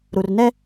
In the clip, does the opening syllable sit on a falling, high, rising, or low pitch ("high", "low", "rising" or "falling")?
low